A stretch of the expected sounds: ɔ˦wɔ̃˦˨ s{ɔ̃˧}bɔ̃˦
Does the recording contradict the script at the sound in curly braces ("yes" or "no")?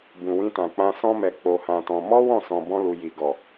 no